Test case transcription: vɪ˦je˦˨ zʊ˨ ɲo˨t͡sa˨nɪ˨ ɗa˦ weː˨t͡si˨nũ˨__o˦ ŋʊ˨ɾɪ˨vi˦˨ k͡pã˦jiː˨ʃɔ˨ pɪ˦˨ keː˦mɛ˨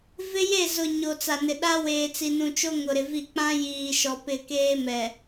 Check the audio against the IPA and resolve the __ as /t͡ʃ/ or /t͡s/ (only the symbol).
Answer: t͡ʃ